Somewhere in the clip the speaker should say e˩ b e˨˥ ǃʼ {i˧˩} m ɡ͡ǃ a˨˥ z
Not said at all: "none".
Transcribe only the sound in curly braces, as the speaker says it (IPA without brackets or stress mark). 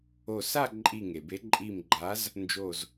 i˧˩